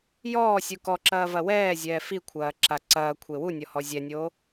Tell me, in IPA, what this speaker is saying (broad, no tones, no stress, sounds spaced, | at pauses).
j ɔː sʲ u k ɔ ǁ ɐː v ɐ w ɛː zʲ ɛː f i kʷʰ ɐː ǁ a ǀ ɐː kʷʰ e w u nʲ ɔ h ɔ zʲ ɛ nʲ oː